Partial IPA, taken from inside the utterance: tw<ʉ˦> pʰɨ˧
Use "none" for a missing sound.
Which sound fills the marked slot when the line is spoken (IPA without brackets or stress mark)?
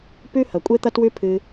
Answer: ʉ˦